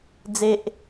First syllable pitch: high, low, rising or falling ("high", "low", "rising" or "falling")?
high